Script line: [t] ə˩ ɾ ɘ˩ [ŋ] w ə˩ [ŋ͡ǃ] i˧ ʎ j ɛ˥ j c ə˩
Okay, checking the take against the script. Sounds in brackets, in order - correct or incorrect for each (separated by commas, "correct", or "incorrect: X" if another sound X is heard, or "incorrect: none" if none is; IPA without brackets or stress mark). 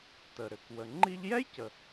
correct, incorrect: k, correct